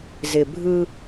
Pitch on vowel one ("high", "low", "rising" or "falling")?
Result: low